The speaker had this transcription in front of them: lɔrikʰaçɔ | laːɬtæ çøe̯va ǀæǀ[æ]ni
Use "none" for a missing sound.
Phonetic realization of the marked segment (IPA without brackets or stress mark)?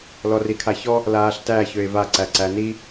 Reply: æ